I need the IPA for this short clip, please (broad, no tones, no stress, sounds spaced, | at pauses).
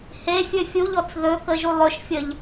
h e fʲ ɵ fʲ u ʎ ɔ t͡s ð ɵ k ə ʒ u lˠ ɵ ʃ fʲ ə ʎ